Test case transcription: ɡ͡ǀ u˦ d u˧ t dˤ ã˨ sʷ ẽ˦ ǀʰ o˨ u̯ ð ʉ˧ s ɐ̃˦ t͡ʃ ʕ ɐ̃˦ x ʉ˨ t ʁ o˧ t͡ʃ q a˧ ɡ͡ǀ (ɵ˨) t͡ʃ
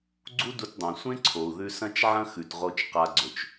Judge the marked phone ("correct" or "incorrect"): correct